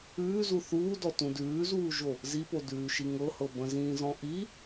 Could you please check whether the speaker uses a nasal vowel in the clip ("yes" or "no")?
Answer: yes